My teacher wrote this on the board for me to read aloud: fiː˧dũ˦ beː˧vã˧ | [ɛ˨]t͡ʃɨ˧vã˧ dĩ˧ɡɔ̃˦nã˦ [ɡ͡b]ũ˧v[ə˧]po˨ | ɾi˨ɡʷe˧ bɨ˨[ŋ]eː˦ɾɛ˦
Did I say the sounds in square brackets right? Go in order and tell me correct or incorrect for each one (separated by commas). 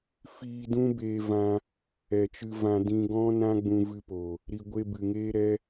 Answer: correct, correct, incorrect, correct